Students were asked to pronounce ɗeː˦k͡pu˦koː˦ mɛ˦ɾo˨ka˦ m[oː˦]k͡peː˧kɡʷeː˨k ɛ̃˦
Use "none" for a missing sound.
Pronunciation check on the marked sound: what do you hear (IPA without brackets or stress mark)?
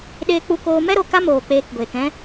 oː˨